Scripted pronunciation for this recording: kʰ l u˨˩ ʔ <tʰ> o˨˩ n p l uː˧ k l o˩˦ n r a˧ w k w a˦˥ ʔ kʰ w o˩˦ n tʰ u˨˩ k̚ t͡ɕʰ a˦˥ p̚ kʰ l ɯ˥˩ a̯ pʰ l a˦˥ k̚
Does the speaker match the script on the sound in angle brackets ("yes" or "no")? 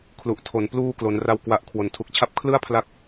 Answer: yes